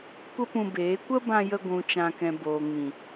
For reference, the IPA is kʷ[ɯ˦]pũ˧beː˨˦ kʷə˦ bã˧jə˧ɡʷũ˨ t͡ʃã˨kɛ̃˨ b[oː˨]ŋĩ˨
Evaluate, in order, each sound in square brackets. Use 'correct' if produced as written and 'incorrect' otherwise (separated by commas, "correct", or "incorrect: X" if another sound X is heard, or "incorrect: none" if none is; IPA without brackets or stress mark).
incorrect: ə˦, correct